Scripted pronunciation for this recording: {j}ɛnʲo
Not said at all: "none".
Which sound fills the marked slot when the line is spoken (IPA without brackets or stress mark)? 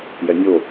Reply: j